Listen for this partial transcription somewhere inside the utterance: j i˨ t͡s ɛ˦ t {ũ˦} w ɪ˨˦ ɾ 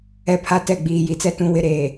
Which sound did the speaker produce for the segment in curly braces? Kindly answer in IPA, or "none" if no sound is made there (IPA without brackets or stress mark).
ũ˨